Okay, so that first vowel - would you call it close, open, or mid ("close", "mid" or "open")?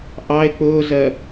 open